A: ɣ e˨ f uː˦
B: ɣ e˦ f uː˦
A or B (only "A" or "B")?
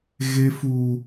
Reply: B